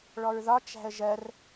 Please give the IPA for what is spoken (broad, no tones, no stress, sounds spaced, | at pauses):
ɭ ɔ ɹ ð ɒ t͡ʃ æ̤ ə̯ ʒ ɜ r